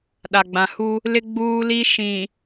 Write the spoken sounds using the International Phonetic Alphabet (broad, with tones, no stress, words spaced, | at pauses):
ɗa˨ɡ͡bã˨hu˦ | lɪ˦ ɡ͡buː˦li˦ ʃĩ˨